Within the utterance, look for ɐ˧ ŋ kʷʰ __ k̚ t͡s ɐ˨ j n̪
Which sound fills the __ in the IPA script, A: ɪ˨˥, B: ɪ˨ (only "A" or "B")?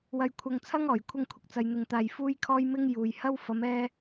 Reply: B